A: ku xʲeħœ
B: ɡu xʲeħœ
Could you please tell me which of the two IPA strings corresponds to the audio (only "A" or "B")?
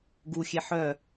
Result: B